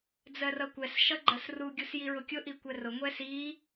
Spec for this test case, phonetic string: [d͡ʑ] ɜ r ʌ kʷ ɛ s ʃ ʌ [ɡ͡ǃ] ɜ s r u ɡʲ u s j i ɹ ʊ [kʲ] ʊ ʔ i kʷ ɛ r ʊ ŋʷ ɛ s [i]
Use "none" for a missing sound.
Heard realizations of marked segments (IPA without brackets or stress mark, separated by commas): d͡z, ɡ͡ǃ, kʲ, i